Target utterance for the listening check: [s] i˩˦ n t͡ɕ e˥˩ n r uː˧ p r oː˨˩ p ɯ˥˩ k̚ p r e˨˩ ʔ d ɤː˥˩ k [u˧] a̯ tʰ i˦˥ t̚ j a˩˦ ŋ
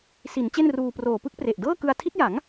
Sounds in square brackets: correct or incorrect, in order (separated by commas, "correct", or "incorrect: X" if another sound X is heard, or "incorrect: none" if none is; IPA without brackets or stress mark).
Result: correct, incorrect: ɯ˧